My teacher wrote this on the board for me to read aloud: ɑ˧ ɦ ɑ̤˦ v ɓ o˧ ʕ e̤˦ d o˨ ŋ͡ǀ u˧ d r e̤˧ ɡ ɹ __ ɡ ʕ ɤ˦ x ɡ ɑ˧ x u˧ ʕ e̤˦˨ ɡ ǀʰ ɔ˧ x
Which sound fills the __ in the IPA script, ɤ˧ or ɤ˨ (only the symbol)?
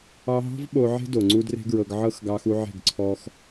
ɤ˧